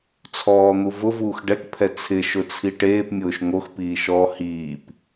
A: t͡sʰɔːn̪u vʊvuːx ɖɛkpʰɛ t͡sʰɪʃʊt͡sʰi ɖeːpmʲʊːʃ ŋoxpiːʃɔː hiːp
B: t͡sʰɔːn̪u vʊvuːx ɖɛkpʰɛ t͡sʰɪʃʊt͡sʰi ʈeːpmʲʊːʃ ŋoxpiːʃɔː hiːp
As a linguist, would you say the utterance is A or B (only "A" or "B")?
B